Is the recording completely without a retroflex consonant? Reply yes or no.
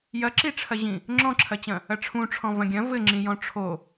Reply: no